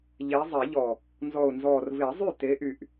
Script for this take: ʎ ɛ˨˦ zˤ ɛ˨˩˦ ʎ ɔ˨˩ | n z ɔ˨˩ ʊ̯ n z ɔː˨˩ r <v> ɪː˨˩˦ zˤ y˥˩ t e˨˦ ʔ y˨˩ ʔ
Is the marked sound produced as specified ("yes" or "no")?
yes